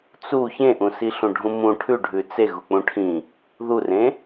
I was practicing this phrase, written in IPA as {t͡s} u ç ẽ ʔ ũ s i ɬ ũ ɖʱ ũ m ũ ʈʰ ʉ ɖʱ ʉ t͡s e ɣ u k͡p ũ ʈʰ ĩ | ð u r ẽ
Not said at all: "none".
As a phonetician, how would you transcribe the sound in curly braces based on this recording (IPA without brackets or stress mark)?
t͡s